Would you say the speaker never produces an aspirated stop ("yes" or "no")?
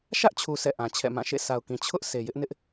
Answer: no